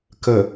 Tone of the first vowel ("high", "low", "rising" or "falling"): low